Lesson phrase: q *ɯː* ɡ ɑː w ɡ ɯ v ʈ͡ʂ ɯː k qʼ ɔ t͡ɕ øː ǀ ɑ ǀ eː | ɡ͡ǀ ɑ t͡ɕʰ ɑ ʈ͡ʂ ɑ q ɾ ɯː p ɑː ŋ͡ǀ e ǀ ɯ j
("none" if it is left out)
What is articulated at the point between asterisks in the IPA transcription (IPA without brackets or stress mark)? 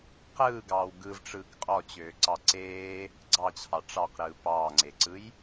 ɯː